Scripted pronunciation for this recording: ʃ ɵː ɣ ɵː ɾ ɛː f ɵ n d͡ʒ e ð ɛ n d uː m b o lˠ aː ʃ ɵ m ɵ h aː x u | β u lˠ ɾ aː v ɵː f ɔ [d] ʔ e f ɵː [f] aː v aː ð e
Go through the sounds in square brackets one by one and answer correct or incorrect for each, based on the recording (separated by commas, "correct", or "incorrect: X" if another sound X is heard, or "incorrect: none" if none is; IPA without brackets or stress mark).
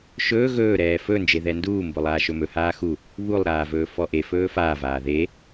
incorrect: none, correct